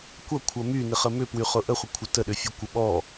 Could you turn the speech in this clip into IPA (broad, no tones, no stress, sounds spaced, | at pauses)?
kʷ ɐ kʷʰ ɐ m y n ɪ χ ə m ʏ p w y χ ʊ ʔ ə χʷ ə kʷʰ ɐ t ə ɗ ʏ fʲ ʊ kʷ ə ɓ ɔ